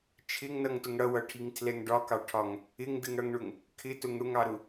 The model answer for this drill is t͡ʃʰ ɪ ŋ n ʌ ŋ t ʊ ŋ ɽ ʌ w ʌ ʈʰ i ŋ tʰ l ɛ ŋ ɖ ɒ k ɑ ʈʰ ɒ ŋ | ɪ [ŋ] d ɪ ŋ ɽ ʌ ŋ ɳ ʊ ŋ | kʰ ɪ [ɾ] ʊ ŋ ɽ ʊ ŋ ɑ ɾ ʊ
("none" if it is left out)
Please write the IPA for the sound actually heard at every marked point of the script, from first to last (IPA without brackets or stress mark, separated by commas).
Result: ŋ, t